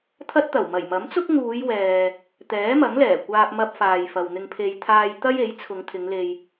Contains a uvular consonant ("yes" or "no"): no